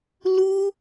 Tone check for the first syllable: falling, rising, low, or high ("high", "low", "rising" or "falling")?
high